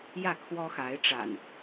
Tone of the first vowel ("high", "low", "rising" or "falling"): falling